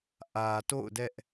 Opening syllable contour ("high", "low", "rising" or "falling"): low